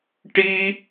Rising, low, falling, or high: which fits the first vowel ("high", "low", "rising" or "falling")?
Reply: high